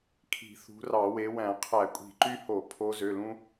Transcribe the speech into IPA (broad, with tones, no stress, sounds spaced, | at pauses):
kʰ i̤˧˩˧ θ ṳ˨˦ r ɑ˧˩˧ w e˨˦ w æ̃˧˩˧ qʰ æ˧˩˧ kʷʼ i̤˧˩˧ ǃ y˦ h o˧˩˧ pʰ o˨˦ z ø˩˧˩ l ũ˦